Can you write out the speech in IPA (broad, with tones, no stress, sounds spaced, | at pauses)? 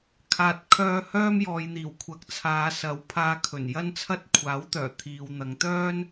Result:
kʰ aː˨ t̚ kʰ œː˧ h œː˥ m j ɔː˨ j n̪ iː˨˩ w kʷʰ ɐ˨˥ k̚ t͡sʰ aː˨˧ s ɐ˨˥ w pʰ aː˧ kʰ ɵ˨˩ n j ɐ˥ n t͡sʰ ɐ˥ t̚ kʷʰ aː˨˥ w t̪ œː˨˩ t̪ʰ iː˨ w n̪ ɐ˨˧ ŋ t̪ œː˥ n